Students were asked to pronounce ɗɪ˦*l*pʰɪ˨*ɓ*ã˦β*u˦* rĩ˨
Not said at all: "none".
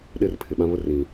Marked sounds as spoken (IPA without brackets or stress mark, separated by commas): r, ɓ, ʊ˦